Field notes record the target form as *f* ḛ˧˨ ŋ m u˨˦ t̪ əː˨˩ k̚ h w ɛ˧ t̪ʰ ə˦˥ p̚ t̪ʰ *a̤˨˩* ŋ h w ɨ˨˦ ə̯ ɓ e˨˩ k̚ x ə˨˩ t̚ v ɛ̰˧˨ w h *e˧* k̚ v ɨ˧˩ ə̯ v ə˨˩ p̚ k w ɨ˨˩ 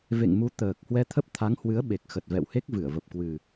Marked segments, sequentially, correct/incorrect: incorrect: v, incorrect: a˨˦, incorrect: e˦˥

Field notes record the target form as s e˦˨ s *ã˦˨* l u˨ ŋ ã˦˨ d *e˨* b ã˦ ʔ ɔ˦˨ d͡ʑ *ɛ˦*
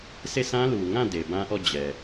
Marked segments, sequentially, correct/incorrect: incorrect: ã˦, correct, incorrect: ɛ˨

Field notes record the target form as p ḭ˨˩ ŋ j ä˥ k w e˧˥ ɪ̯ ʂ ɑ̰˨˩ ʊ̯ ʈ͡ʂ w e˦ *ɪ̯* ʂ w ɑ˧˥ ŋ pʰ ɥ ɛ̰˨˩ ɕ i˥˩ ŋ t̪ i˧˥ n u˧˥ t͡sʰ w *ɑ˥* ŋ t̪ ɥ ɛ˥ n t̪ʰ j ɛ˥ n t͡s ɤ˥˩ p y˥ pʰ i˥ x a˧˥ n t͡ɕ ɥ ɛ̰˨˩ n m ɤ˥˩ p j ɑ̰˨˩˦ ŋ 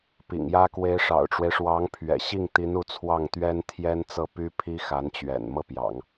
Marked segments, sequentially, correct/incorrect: correct, incorrect: ɑ˥˩

